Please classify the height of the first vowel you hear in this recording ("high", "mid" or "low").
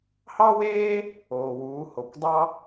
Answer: low